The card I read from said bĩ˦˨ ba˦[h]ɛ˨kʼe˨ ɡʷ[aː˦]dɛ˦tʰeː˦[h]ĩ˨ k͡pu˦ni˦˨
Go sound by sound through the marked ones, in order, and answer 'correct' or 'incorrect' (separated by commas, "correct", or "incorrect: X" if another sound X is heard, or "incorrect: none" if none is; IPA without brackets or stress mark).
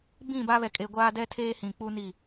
incorrect: β, correct, correct